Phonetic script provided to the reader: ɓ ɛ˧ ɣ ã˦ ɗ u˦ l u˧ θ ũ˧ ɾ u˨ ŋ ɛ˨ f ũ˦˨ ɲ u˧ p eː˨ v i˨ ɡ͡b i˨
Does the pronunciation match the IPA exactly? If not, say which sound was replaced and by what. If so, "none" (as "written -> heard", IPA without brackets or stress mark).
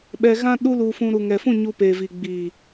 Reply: θ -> f